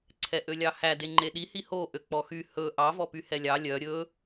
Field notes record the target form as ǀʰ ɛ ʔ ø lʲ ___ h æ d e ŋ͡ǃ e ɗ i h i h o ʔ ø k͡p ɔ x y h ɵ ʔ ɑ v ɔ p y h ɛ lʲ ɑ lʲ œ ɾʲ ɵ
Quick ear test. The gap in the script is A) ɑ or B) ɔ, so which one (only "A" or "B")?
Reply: A